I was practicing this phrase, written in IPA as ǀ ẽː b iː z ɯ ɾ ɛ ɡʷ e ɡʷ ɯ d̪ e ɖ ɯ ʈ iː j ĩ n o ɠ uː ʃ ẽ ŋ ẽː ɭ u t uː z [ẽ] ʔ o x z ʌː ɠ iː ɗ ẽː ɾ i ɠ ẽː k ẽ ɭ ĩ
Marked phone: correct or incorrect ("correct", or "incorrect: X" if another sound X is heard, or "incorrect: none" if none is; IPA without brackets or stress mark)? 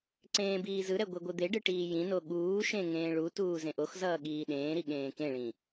correct